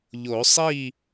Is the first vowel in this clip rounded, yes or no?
yes